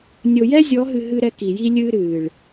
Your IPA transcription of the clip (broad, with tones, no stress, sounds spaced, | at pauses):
nʲ o˨ j ɛ˦ zʲ ɔ˨˦ ɦ ɨ˨ ɦ ɨ˦ ɾ ɛ˦ k i˨ j i˦ lʲ ɨː˦ ɾ ɨː˨ ɭ